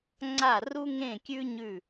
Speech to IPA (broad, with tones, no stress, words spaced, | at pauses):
ŋ͡ǀa˥˩ru˥ŋẽ˥˩kʲʉ˥ ɲʉ˥˩